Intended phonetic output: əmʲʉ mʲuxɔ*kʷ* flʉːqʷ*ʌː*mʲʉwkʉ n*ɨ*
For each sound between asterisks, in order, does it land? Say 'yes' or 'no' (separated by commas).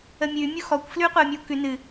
yes, no, yes